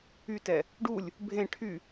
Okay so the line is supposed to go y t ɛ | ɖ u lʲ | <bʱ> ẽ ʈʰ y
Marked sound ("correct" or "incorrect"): correct